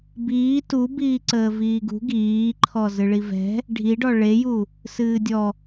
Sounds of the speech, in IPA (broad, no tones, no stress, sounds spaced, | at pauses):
b iː t u b iː ǀ əː v iː ɡ ṳ ɡ iː ǃʰ ɔ z ɨ ɭ i v ɛ̤ | ɖʱ i ɖ ɔ ɭ e j u | s ɨː dʲ ɔ